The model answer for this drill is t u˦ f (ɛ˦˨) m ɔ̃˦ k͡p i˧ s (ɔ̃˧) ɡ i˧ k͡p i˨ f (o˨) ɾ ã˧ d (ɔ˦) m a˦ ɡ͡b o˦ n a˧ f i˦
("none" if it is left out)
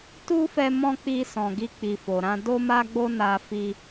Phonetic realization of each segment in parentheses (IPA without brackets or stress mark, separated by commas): ɛ˧, ɔ̃˨, o˨, o˦